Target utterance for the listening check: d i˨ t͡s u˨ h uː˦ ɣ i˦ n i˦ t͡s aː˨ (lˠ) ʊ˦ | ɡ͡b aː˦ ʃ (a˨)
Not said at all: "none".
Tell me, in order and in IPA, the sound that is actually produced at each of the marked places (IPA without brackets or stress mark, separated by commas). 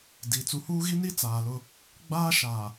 l, a˨